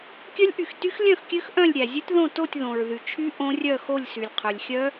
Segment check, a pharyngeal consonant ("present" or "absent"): absent